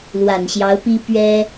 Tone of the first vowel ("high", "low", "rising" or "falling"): low